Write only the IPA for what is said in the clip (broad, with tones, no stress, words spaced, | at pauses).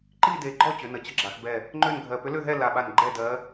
ǃi˥˧de˧˩ɡ͡ǃɔ˥˧ t͡ɕʏ˩˧nə˩˧ t͡ɕə˧˥ɡ͡ǁa˩˧xbɛ˧˩ | ŋ͡ǃø˥˧nɡʱɜ˧˩ pʏ˧˥lø˥˧ɦɛ˥˧ la˧˩ɓa˧˩n ɡ͡ǃɛ˥˧dɜ˧˥